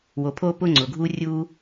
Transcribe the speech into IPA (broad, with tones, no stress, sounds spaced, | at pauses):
w o˩ pʰ oː˥ p ʊː˥ ŋ͡ǀ ʊː˩ ɡʱ uː˥ rʲ uː˥